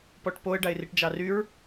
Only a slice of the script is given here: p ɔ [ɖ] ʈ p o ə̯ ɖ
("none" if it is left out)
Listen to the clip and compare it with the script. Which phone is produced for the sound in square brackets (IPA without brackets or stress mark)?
none